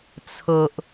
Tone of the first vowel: low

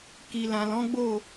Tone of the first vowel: low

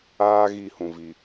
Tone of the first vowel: high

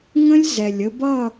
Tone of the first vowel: high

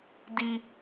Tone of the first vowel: high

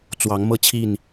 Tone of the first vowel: rising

